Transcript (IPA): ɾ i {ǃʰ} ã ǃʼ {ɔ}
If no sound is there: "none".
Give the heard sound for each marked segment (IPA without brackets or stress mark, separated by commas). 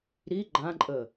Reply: ɡ͡ǃ, ə